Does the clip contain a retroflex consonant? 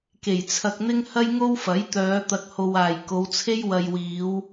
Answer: no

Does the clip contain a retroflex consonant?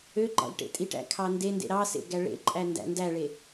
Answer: yes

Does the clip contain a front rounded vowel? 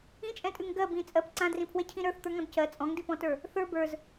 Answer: no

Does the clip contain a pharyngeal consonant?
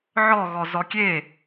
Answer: yes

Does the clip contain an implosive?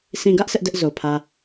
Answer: no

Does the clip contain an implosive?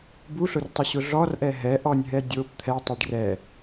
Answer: no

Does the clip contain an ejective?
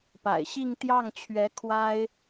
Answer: no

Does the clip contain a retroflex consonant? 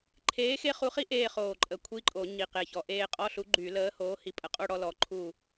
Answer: yes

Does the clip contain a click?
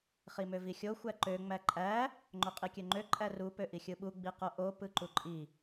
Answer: yes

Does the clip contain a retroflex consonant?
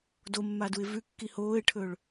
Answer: yes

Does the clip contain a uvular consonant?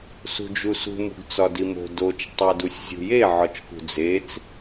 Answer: no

